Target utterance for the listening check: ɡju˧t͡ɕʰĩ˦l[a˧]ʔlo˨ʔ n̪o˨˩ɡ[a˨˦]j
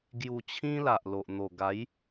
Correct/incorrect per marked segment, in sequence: incorrect, correct

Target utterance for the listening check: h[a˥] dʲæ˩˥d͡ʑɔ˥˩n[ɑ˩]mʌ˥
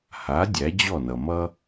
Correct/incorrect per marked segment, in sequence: incorrect, incorrect

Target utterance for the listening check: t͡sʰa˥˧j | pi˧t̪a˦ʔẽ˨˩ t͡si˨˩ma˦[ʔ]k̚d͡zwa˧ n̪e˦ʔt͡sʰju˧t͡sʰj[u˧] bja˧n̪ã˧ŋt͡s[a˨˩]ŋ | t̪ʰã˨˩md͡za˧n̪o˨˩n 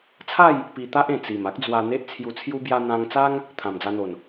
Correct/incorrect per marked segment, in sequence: incorrect, incorrect, incorrect

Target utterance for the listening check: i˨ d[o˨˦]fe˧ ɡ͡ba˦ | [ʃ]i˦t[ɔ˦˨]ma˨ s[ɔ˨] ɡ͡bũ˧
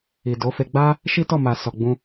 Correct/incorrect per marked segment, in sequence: correct, correct, correct, correct

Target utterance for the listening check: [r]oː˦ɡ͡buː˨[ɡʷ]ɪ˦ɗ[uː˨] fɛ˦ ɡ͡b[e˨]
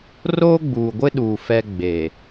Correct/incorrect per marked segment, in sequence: correct, correct, correct, correct

